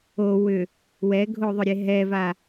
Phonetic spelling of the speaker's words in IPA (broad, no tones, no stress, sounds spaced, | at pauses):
o w ʏ | w ɛ ɡʱ o ðˤ ʏ ɾʲ e ɦ ɛ v a